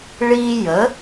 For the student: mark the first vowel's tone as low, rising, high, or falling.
high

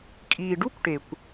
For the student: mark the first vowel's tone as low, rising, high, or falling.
low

